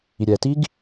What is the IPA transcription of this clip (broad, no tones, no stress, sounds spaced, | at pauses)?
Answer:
i ɾʲ ɛ t i ɡ